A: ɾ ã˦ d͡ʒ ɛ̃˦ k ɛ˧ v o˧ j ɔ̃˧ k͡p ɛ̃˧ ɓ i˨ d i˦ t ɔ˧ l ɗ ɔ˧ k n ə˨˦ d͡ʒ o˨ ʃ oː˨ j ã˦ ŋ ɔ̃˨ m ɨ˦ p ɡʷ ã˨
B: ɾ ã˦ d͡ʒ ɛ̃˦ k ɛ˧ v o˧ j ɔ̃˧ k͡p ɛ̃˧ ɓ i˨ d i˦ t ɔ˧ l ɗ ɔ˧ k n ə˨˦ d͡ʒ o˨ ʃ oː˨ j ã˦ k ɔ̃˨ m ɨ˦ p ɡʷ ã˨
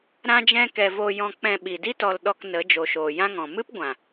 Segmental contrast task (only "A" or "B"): A